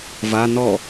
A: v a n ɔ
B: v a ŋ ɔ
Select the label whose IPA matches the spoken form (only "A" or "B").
A